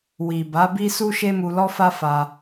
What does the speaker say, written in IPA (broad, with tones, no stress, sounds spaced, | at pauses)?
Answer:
w i˨ b a˨˦ b i˦ s u˦ ʃ e˦ m u˧ l ɔ˦ f a˦ f a˧